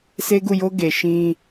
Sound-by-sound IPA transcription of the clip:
s e˦ ɡ u˦˨ j o˦ ɡ e˨ ʃ ĩ˦

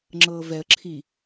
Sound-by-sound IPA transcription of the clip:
ŋ͡ǁ ɤː v ɛ ə̯ ǁʰ i

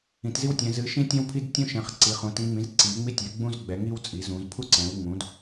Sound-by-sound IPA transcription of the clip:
ĩ˩˧ t z i˦ w tʲ ɛ̃˩˧ z ɨ˩˧ ʃ ĩ˦ tʲ ɛ̃˦ w pʰ i˦ d tʲ ũ˦ ʃ ɛ̃˩˧ χ ǀ i˩˧ χ ũ˩˧ t ĩ˩˧ ŋ͡m ĩ˩˧ z ǀ i˩˧ ŋ͡m i˦ tʲ ɛ˩˧ ɡ͡b ũ˦ z ɡ͡b ɛ˩˧ ŋ i˦ w t͡sʼ i˩˧ z ũ˩˧ z pʰ u˦ ǀ ɛ̃˩˧ w ŋ͡m ũ˩˧ d

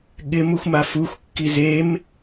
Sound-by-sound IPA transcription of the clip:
ɠ ɪ m u xʷ m a f u xʷ kː i z e m

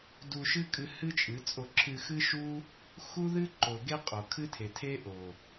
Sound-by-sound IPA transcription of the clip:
d u˧ ʃ ɨ˦ kʼ ɨ˧ h ɨ˦ t͡ʃʼ ɨ˨˦ t͡sʼ o˧ ǁʰ ɨ˧ x ɨ˦ ʃ u˦ | x u˦ ð ɨ˦ ǃ o˨ ɡ e˦ qʼ o˨ kʰ ɨ˦ tʰ e˨ tʰ e˦ ʔ o˨

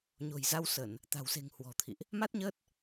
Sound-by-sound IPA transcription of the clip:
ɲ o̤˨˩ j z a˧ w s ə˧˩˨ n | t̪ a̤˨˩ w s e̤˨˩ ŋ h w ɔ̤˨˩ t̪ʰ ḭ˧˨ ʔ | m a˦˥ t̚ ɲ əː˦˥ t̚

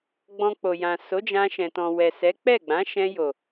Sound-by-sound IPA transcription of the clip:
ɡ͡b ɔ̃˧ k͡p o˨ j ã˨ s o˨˦ d͡ʒ ã˧ ʃ ɛ̃˨ t ɔ̃˨ w ɛ˨ s ɛ˨˦ k͡p ɛ˦˨ ɡ͡b ã˨˦ ʃ ɛ̃˧ j o˨

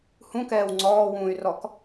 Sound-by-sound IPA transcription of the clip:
h ũ k ɛː w ŋ͡ǀ ɔː w ũː y̯ r ɔ k

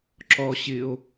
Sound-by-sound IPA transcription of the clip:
ǁ ɔ ɕ ɪ o̯

